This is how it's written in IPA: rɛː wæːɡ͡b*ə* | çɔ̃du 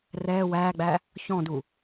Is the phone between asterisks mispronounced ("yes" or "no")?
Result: yes